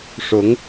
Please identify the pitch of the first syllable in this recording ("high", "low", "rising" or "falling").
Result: rising